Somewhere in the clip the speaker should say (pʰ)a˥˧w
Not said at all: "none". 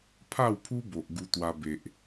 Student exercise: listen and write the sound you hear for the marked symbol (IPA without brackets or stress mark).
pʰ